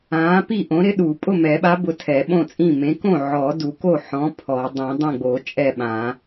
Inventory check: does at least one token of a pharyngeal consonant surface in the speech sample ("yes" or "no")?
yes